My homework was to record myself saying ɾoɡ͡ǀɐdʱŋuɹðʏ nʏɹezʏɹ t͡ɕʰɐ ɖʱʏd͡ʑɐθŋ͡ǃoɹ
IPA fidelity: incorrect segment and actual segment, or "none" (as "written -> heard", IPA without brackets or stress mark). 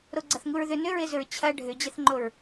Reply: dʱ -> θ